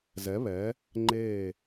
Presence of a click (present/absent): present